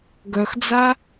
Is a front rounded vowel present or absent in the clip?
present